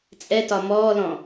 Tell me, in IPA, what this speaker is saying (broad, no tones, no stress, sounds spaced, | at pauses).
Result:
t͡sʼ ɛ t ɒ m ɔː l ɔ̃